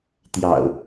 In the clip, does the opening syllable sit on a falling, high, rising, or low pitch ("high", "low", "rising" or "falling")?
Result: low